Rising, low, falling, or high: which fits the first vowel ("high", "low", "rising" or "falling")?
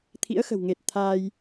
rising